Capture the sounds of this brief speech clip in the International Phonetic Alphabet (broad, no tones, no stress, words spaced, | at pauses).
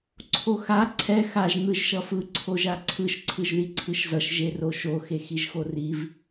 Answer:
ǀʰoxa ǀʰɛ xaʒ n̪ɯʒʃʌfɯ ǀʰoʒaǀʰɯʃ ǀʰɯʒðiǀʰɯʃzʌʃ ʒeroʃo xexiʒxoriv